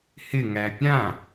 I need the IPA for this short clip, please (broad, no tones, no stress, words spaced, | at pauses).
hɪŋæ pʲã